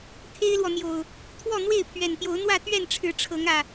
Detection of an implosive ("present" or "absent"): absent